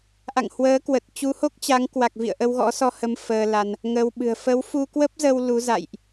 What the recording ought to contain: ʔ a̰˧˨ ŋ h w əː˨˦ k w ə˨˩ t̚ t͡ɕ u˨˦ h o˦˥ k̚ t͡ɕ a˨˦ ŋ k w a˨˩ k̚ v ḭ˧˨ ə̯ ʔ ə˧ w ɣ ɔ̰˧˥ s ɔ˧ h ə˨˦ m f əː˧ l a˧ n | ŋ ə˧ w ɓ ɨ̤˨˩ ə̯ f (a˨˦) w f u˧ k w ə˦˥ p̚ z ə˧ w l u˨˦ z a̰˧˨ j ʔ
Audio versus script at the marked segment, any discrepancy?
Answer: yes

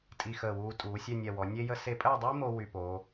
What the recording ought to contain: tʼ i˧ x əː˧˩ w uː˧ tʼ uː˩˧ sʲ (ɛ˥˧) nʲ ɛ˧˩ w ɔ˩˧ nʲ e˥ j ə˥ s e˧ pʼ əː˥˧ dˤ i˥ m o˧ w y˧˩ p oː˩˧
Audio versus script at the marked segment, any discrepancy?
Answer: no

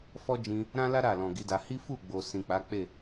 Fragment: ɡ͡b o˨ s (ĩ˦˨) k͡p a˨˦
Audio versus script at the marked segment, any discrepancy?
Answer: yes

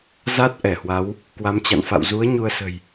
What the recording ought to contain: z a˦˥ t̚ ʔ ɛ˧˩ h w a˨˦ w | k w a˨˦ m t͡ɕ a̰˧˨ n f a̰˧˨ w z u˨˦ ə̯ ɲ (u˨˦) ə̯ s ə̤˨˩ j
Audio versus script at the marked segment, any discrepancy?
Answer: yes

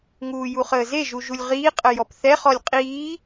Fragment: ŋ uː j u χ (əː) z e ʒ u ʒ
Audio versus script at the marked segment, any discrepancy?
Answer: no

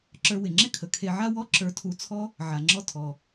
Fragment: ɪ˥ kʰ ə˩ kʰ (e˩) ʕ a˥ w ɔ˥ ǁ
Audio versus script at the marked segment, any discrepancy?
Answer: yes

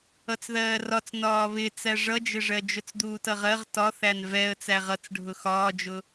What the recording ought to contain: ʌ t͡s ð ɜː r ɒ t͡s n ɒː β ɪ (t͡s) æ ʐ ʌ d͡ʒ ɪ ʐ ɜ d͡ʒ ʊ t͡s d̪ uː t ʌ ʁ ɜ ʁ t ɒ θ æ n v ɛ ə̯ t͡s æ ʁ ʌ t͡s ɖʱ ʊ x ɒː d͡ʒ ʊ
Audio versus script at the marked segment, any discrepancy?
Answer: no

